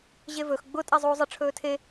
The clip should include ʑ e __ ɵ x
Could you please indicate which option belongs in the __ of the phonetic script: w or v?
v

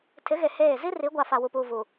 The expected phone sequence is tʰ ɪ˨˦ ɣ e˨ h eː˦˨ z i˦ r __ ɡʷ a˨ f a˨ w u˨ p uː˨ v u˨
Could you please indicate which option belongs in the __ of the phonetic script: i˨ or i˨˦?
i˨˦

